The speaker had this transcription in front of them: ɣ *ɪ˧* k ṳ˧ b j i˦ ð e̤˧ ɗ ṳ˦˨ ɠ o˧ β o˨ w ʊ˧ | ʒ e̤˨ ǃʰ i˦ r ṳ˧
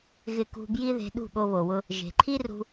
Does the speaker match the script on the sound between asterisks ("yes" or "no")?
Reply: yes